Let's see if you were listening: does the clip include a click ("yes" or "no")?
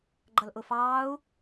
yes